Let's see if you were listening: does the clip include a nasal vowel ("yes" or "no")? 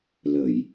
no